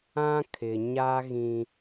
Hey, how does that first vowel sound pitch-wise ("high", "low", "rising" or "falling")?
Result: high